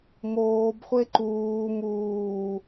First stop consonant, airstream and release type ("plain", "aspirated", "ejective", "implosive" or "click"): plain